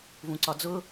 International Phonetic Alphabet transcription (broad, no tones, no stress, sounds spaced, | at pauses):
v ũ ǀ ɒ d͡z ʊ